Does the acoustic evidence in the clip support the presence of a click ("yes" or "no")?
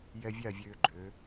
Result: yes